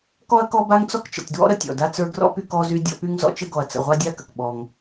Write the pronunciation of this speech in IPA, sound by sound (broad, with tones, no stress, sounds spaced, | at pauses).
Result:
k ɔ˥ ɐ̯ k ɔ˥ b a˥ ŋ t͡s ɔ˥ k t͡ʃ ə̰˨ tʲ d w ɔ̰˥ ɾ ə˦ tʲ ɔ̰˨ d a˦ t͡s ə˞˦ ɡ r ɔ̰˥ p y˦ k ɔ˦ z y˦ dʲ ɔ̰˦ p y˥ ŋ z ɔ̰˦ t͡ʃ ə˦ ɡ ɔ˨ ɐ̯ t͡s ə̰˨ ʁʷ a˦ dʲ a˦ k ə˩ k ɓ ɔ˨ ŋ